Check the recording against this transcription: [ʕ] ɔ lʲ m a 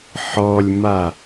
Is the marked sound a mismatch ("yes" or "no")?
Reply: yes